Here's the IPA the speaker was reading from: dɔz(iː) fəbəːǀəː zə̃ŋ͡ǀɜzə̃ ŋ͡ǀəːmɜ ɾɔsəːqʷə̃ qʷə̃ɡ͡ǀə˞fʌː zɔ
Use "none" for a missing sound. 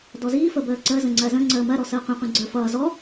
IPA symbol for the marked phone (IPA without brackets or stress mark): iː